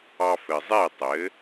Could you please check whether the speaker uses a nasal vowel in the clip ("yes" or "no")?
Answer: no